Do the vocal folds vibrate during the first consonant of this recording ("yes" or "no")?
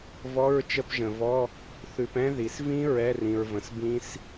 yes